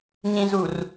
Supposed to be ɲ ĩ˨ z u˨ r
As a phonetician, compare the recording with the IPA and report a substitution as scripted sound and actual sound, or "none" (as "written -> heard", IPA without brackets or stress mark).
none